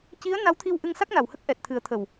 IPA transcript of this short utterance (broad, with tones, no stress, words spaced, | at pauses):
ci˧˥ə̯ na˧˥wt̪ʰi˧w ʔɨ˧ŋsa˦˥k̚na˨˩whə˦˥k̚ ʔɛ˨˩t̚t̪ʰɨ˨˩˦ə̯t̪ʰə˨˩w